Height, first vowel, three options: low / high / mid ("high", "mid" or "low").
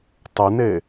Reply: mid